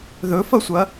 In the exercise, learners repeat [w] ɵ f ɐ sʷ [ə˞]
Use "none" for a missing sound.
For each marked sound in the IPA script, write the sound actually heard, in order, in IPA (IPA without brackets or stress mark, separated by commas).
ð, ɐ